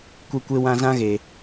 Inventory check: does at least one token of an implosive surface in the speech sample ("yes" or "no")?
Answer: no